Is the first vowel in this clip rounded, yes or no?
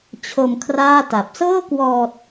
yes